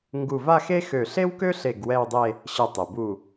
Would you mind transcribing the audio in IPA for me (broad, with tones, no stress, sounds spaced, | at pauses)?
ŋ ɡ u˧˩ v a˥˧ x e˥ x ø˧˩ ɬ e˥ w k ø˥ ɬ e˧˩ ɡ w ɛ˥˧ w dˤ e˥˧ | ɕ ə˧˩ tˤ e˩ b u˧˩